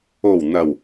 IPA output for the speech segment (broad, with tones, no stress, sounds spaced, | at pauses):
o˨˩ w n̪ ɐ˨˩ w